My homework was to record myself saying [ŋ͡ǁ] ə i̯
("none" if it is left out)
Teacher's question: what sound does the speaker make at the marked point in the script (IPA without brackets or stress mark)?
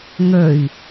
ŋ